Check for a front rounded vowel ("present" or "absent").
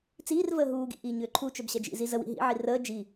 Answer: present